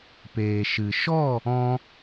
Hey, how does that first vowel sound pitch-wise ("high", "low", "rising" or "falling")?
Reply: low